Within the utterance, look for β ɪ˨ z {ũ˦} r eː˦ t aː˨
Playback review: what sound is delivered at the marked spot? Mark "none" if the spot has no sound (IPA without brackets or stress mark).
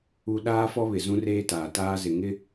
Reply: ũ˦